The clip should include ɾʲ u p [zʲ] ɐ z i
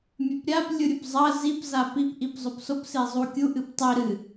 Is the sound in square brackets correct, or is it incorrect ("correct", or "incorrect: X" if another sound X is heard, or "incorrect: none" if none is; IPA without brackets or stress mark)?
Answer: incorrect: zˤ